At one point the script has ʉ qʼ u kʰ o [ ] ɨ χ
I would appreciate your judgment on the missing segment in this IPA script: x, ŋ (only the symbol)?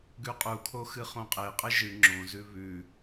x